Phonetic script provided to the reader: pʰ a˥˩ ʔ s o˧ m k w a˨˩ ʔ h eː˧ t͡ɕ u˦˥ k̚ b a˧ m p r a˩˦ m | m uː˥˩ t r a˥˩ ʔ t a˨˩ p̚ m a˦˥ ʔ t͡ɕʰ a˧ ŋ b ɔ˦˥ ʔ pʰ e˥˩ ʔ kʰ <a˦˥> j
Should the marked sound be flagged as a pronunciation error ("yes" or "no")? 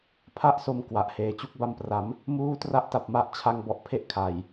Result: yes